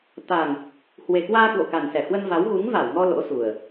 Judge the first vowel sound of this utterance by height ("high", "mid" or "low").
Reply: low